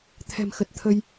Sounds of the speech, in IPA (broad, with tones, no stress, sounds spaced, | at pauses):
t̪ʰ ɛ̤˨˩ m x ə˨˩ t̚ t̪ʰ ə˧ j